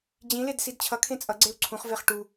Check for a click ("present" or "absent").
present